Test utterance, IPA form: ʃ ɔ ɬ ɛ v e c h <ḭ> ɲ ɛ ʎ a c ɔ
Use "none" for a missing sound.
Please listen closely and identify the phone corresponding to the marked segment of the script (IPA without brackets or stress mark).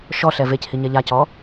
i